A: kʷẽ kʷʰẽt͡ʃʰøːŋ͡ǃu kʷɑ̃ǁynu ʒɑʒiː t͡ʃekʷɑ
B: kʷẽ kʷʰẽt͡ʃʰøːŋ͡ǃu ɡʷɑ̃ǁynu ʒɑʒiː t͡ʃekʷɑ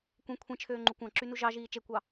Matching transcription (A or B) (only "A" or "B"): A